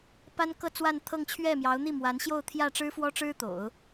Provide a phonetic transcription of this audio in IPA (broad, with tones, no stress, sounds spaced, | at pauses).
p a˥ n k ɤ˥˧ t͡s w a˥˧ n t̪ʰ ɤ˥˧ ŋ t͡ɕʰ ɥ ɛ˥˩ m j ɑ˧˥ ʊ̯ n̪ i˥˩ m w a˧˥ n ɕ j o˥˧ ʊ̯ t̪ʰ j ä˥˩ ʈ͡ʂ ɻ̩˥ f w ɔ˥ ʈ͡ʂ ɻ̩˥ t̪ o̰˨˩˦ ʊ̯